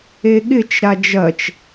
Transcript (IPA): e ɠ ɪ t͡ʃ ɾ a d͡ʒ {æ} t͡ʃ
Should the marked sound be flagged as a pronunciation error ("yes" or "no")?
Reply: yes